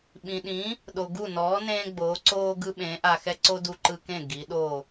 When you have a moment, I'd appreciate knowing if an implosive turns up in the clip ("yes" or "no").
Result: yes